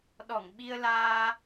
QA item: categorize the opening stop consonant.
implosive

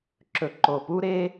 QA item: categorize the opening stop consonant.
click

